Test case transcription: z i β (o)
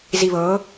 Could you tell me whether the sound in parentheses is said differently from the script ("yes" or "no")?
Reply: yes